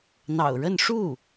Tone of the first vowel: low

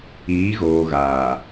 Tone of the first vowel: rising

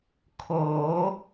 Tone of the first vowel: rising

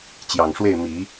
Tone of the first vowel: low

